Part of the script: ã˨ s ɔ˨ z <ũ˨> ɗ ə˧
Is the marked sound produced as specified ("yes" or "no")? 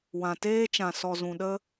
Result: yes